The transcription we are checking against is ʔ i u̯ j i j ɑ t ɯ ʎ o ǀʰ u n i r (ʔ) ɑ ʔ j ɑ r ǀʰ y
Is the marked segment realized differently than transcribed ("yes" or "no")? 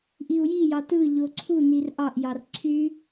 no